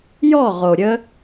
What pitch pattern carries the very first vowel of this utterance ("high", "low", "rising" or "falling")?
falling